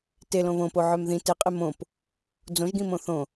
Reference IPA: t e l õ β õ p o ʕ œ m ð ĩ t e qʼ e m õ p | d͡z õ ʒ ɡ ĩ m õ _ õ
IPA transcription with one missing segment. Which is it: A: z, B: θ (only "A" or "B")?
B